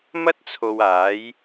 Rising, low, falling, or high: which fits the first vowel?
high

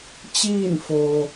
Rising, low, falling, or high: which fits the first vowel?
falling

